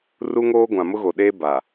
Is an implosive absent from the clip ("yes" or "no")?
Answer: no